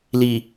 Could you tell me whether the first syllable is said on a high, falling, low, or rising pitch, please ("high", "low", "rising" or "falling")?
low